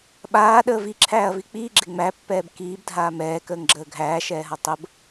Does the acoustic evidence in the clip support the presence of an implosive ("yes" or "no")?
yes